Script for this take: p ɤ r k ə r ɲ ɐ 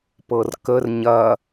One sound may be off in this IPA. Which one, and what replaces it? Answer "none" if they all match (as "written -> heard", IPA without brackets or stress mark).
none